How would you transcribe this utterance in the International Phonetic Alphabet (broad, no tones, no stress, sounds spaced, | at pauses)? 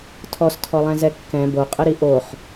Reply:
tʰ ɔ s tʰ ɔ lˠ ɛ̃ z ɛ kː ɛ̃ b o qʼ ə ɾ i ʔ o χ